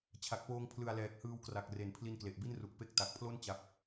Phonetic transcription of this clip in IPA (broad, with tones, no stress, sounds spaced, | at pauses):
t͡ɕʰ a˨˩ k̚ p oː˧ ŋ pʰ l ɯ˨˩ a̯ l ɛː˨˩ k̚ h ɯː˧ w k r a˨˩ k̚ r e˩˦ n pʰ l i˧ n k l e˨˩ ʔ b i˥˩ n r u˨˩ k̚ p e˦˥ k̚ t a˨˩ k̚ pʰ l o˥˩ n t͡ɕ a˦˥ p̚